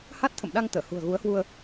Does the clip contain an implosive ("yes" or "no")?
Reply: yes